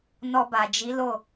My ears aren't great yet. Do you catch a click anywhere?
no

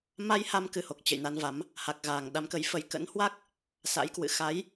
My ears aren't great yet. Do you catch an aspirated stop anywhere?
no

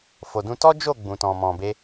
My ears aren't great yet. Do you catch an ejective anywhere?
no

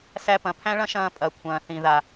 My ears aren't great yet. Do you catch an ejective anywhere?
yes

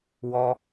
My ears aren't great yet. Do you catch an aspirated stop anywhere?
no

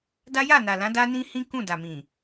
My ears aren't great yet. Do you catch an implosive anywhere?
no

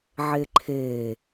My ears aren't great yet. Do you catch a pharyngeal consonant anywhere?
yes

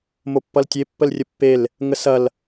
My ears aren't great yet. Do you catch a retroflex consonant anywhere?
no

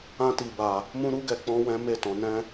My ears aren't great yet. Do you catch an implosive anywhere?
no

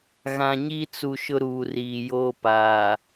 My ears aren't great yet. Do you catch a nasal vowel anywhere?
yes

